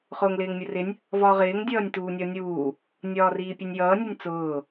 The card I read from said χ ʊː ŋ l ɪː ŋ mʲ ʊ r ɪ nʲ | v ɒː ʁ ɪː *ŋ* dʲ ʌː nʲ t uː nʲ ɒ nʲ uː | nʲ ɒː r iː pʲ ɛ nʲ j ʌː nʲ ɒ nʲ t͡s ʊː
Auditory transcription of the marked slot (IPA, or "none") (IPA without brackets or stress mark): ŋ